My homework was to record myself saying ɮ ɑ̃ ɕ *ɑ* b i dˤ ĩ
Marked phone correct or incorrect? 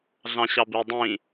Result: correct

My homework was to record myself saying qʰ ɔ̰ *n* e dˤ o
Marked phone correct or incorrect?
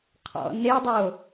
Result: correct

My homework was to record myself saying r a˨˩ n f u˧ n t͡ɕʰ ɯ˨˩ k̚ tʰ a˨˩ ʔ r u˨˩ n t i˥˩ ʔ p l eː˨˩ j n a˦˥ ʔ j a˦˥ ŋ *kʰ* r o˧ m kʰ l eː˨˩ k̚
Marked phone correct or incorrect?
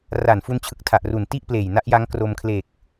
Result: incorrect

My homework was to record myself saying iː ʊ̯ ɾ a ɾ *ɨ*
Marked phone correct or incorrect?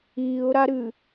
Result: correct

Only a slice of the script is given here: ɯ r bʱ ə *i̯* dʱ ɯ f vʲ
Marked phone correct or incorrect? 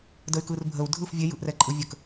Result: incorrect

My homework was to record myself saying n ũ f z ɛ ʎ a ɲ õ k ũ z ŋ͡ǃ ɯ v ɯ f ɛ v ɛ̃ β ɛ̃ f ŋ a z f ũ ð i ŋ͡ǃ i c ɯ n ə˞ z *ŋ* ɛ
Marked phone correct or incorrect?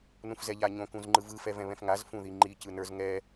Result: correct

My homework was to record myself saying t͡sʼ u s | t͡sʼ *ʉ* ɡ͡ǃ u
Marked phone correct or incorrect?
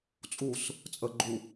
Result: incorrect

